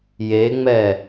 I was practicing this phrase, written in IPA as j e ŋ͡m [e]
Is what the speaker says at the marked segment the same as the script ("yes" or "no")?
no